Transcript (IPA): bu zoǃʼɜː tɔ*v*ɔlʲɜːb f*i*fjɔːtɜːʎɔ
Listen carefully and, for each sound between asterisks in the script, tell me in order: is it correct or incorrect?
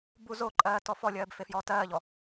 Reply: incorrect: f, incorrect: e

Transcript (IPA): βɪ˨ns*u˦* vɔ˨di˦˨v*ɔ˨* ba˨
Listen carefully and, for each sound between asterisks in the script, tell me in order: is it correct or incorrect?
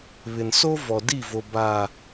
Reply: incorrect: o˦, incorrect: o˨

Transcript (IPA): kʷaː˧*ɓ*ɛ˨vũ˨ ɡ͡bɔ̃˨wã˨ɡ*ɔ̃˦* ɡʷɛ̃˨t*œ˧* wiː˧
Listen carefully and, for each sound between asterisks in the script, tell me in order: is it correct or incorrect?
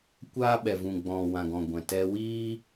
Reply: correct, incorrect: ɔ̃˨, incorrect: ɛ˧

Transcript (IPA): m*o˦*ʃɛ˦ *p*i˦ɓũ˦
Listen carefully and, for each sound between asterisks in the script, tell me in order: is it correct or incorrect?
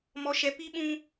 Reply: incorrect: ɔ˦, correct

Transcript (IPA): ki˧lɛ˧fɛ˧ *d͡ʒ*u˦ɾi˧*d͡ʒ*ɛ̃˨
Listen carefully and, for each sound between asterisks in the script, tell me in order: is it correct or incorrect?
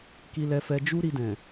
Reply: correct, incorrect: d

